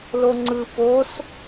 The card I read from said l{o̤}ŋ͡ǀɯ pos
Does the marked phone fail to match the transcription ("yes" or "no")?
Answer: yes